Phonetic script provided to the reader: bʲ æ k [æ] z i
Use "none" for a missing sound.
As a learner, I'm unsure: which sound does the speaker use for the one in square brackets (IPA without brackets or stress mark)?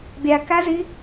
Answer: æ